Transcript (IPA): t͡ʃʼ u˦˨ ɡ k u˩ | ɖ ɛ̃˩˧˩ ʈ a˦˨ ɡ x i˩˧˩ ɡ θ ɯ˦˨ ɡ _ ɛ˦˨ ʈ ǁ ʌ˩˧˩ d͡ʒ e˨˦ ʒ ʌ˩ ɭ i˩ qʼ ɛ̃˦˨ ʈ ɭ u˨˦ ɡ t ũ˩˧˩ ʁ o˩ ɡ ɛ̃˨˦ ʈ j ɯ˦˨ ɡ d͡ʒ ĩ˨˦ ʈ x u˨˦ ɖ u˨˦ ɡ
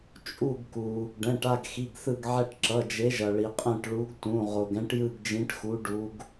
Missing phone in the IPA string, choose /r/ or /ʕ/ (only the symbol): ʕ